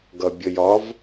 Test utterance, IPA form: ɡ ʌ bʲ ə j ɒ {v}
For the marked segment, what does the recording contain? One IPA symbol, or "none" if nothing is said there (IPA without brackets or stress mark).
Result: v